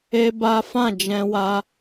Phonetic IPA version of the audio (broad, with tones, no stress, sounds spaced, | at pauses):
e˦ b a˦ f ã˦˨ d͡ʒ ɛ̃˧ w a˦